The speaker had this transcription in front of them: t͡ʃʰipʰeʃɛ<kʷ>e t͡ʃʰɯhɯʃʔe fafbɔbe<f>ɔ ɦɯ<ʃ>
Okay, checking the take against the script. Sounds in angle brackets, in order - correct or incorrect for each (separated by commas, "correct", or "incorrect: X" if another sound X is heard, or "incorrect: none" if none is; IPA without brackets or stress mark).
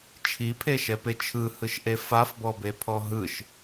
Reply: incorrect: p, incorrect: pʰ, correct